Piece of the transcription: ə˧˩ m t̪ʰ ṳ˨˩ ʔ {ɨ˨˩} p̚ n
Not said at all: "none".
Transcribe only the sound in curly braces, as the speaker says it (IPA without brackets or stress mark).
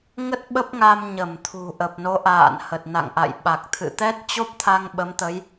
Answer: ə˨˩